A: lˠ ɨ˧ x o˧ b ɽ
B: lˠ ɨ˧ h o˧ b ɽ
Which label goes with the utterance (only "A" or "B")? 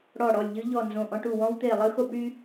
A